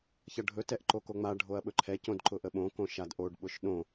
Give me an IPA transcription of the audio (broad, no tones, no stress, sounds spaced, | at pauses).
ç ʌ ɖʱ ɵ t ɛ ʔ ǃ o k o ŋ͡m a ɖʱ o ɐ̯ ɓ ɵ ǃʰ ɛ c õ d ǃ ʊ ʔ ə ɓ õ k õ ʃ a d ʔ o ɖ ɓ ʊ ʃ ɗ õ